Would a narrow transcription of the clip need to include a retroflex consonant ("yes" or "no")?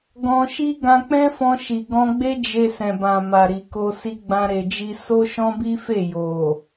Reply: no